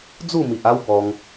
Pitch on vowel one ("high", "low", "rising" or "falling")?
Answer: falling